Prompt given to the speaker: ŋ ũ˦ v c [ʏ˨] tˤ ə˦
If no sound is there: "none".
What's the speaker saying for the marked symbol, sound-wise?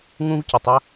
ʏ˨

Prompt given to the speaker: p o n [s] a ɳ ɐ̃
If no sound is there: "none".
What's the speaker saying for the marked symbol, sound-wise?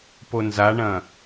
z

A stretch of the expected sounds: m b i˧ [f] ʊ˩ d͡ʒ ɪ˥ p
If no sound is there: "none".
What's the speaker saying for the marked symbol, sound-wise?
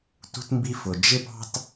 f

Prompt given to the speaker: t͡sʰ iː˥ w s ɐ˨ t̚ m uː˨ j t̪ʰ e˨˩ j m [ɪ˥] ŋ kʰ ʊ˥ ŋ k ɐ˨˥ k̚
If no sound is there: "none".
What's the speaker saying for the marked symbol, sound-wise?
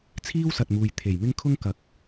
ɪ˥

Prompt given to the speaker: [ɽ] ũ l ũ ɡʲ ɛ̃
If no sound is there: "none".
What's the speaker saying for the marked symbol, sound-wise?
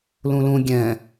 l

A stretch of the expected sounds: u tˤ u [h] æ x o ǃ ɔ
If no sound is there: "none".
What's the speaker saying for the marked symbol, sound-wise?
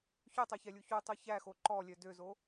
ç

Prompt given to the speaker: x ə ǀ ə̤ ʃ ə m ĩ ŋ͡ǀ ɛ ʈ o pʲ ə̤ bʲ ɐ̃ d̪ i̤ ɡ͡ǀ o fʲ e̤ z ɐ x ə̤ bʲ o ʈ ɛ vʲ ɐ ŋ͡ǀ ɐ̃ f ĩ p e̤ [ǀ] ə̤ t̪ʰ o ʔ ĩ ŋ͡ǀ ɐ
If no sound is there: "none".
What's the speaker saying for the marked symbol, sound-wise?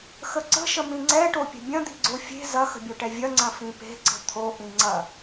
ǀ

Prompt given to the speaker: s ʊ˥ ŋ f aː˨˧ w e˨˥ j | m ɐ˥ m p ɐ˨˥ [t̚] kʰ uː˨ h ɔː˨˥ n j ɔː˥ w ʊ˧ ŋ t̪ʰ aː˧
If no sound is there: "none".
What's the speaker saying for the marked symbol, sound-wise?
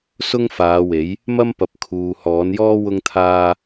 p̚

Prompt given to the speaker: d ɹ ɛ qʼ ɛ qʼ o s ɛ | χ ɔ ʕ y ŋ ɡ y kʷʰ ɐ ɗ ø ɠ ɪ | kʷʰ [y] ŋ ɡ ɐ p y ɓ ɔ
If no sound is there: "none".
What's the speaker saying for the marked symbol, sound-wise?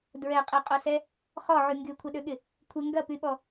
ɪ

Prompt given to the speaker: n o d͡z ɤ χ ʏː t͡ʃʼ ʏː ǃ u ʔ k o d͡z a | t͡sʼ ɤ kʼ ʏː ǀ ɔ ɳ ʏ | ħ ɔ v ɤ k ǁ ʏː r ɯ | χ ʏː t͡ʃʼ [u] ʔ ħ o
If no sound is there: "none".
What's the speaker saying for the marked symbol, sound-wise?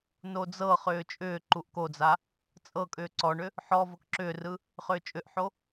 ʏ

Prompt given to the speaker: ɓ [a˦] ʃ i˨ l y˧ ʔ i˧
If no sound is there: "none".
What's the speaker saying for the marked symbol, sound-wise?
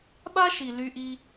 a˦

